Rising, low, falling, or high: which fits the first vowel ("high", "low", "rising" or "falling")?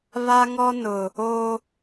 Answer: high